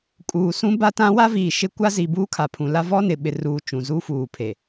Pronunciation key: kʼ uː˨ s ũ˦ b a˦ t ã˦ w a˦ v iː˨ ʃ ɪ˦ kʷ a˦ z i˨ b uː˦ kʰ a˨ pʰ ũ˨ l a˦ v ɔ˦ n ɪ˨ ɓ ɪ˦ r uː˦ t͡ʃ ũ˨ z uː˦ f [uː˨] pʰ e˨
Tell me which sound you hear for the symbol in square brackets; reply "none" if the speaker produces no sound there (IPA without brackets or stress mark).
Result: uː˨